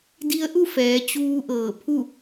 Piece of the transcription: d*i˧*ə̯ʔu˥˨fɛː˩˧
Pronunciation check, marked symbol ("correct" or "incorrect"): correct